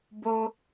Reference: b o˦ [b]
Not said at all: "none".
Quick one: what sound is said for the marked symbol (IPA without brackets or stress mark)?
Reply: none